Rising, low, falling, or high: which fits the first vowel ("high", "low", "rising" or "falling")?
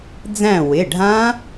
falling